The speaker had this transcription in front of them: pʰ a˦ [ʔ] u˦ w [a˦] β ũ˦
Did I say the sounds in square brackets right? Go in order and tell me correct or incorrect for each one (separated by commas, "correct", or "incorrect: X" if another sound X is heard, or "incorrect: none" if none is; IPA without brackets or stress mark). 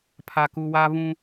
incorrect: k, correct